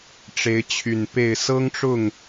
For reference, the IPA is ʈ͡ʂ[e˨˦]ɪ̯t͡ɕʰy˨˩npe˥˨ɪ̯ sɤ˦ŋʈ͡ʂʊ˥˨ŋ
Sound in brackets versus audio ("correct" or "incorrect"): correct